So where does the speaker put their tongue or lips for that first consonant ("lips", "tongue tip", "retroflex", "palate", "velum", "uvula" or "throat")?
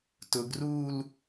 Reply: tongue tip